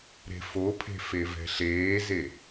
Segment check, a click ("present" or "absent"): absent